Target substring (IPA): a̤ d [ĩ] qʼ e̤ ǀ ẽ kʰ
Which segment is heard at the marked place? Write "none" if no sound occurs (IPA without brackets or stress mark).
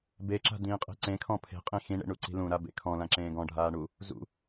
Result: ĩː